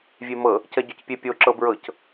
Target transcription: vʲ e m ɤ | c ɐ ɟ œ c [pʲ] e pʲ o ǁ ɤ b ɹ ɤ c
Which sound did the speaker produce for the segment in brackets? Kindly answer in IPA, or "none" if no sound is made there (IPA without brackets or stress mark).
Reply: pʲ